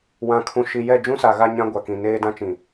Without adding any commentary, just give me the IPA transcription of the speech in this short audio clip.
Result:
wã˨ kʰũ˨ʃi˨ jɛ˦˨d͡ʒũ˦sa˨ ɣa˦ɲã˦ɡʷa˨kĩ˨ neː˦dã˦t͡ʃĩ˨

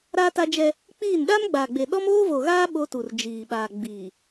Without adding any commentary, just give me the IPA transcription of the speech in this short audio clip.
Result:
ɾaː˦ta˦d͡ʒɛ˦ | k͡piː˦˨n ɗa˦mɡ͡ba˨ɡ͡be˨ ɗɔ˦moː˦vo˨ɣaː˦ ɓo˦tu˨r d͡ʒiː˨ ɓaː˨ɡ͡biː˨

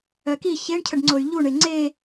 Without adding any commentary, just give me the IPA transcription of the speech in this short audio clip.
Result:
œki çeɳcʰəɖŋ͡ǀoy̯ ʎuɳe ŋ͡ǀe

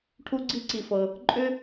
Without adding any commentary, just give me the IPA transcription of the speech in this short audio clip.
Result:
ʈʰu˥ɡ͡ǀi˥ǀi˧fɤ˧ | ǃʼʏ˥

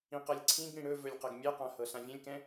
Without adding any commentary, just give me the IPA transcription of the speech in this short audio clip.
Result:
ĩqɤlʲǀʰĩɡɽĩ ɽɵvɵlʲ qɤɡmʲɛqã hɤɬãvʲɛ̃lʲkɛ̃

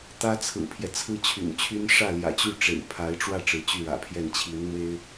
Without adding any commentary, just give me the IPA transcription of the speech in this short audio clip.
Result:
t̪ä˥t͡sʰɹ̩˨˩pʰjɛ˦ t͡sʰɹ̩˥t͡ɕʰy̰˨˩nt͡ɕʰy˥n ʂä˥˩ljä̰˨˩t͡ɕy˥˩ ʈ͡ʂḛ˨˩ɪ̯pʰa˧˥ɪ̯ʈ͡ʂwä˥˩ ʈ͡ʂɻ̩˧˥t͡ɕy˥˩ɻä̰˨˩pʰjɛ˥˩n t͡ɕʰi˧˥nn̪we˥ɪ̯

